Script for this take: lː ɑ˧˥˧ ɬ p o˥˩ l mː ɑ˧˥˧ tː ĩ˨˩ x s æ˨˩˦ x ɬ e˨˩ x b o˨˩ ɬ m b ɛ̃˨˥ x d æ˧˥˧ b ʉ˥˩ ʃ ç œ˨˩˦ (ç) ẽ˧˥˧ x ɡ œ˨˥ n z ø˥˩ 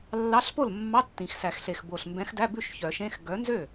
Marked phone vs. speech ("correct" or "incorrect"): incorrect